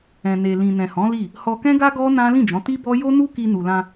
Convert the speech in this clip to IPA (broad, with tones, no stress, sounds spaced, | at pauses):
ɛ̃˨ n e˨ l ĩ˨ n ɛ̃˨ h ɔ̃˨˦ l i˦˨ | h ɔ˧ k ɛ̃˦ ɡ a˦ ɡ ɔ˦ n ã˦ l ĩ˦˨ d͡ʒ ɔ̃˨˦ t i˦ b ɔ˦ j o˦ n u˦ k i˧ n u˨ l ã˧